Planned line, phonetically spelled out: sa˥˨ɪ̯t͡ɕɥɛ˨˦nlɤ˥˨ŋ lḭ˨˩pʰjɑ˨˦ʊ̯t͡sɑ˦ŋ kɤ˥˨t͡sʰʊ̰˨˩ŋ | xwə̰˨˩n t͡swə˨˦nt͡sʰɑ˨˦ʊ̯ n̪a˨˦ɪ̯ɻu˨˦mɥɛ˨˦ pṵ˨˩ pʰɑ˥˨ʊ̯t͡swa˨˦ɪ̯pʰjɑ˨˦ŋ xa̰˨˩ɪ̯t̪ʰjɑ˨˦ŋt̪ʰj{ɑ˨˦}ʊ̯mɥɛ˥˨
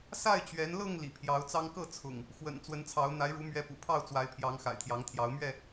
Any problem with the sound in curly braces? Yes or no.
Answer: no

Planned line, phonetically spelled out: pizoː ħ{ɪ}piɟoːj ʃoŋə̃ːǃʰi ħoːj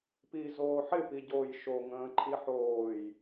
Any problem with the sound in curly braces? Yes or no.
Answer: no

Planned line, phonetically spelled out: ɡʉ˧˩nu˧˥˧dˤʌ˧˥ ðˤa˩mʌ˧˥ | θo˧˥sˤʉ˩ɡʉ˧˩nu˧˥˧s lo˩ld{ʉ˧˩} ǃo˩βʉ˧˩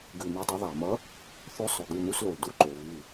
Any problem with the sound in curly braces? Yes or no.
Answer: yes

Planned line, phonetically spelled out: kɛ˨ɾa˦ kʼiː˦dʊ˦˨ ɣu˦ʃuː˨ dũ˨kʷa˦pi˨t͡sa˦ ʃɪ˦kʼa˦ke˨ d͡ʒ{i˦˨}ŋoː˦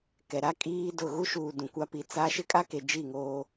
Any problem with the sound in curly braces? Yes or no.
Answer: no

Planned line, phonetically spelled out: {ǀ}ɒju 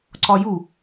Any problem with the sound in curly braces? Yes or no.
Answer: no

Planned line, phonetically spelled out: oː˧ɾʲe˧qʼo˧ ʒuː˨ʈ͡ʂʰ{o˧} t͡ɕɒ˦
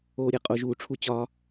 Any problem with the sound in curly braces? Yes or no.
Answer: yes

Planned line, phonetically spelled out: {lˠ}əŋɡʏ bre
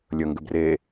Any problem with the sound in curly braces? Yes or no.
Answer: yes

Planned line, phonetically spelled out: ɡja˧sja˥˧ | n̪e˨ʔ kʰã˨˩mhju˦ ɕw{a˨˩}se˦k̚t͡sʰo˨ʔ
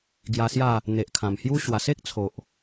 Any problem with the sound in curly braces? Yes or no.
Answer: no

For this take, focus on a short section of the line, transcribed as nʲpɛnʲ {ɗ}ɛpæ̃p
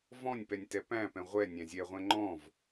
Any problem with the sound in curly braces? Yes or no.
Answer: yes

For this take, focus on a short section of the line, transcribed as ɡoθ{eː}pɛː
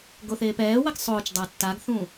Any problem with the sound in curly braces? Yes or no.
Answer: no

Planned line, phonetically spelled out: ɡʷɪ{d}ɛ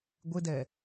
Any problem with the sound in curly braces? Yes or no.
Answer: no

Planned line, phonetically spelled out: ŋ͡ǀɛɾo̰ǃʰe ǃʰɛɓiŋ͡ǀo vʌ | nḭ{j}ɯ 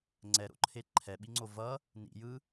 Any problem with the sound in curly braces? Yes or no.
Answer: no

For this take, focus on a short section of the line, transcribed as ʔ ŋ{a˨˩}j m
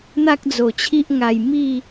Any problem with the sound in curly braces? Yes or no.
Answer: yes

